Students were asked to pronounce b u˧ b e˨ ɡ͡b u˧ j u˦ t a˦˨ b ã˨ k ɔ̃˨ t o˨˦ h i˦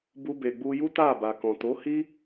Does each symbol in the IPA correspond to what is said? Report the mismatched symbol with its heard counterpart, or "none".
ã˨ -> a˨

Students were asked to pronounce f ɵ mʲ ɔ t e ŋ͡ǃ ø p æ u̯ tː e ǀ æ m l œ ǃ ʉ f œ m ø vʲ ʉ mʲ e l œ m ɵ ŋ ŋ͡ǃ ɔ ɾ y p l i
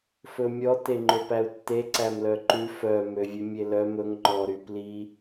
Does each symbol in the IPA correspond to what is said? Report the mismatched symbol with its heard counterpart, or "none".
none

